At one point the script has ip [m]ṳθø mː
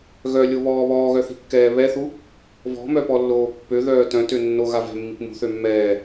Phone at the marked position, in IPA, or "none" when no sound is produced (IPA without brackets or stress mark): m